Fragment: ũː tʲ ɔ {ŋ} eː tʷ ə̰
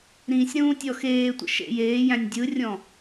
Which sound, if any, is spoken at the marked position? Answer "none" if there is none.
x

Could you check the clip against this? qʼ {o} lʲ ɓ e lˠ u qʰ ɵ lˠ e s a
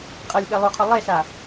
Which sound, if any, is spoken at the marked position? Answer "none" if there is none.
ɤ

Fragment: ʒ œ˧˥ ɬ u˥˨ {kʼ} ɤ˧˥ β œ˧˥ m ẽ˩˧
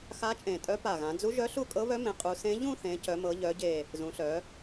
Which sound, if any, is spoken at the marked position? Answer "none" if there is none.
kʼ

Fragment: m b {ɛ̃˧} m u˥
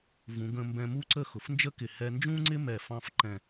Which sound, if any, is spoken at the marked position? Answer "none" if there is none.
ɛ̃˧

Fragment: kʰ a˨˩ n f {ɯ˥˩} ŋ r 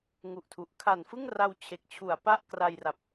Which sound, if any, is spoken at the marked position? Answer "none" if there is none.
ɯ˥˩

